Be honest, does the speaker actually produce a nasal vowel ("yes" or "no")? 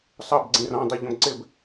yes